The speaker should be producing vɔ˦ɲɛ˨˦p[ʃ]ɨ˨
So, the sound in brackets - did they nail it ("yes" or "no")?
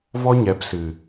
no